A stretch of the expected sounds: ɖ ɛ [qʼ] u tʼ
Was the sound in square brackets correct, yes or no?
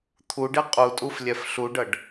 yes